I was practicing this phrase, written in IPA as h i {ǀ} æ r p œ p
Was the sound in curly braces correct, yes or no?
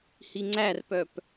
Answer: no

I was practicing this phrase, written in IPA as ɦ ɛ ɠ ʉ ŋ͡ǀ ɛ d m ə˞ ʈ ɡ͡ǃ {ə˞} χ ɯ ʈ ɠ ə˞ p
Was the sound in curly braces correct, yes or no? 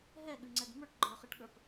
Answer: yes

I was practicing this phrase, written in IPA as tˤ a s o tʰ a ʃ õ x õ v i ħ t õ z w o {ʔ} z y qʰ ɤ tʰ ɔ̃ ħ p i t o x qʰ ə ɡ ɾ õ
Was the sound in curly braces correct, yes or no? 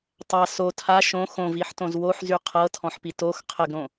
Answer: no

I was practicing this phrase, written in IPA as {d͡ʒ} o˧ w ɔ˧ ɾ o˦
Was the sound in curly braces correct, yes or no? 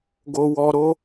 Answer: no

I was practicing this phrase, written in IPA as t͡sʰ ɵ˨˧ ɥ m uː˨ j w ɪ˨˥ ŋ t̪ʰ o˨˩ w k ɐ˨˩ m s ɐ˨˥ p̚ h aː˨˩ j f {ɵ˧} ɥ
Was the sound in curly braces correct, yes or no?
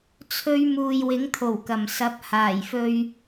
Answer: yes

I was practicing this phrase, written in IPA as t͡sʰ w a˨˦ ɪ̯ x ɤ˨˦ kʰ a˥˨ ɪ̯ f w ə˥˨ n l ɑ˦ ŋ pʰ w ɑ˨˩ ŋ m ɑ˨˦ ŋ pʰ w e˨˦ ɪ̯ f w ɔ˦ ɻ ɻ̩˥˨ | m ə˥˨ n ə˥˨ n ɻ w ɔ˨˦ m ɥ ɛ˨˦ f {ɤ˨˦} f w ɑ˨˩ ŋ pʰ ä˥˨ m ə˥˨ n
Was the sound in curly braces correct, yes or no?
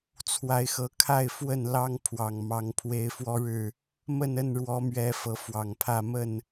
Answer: yes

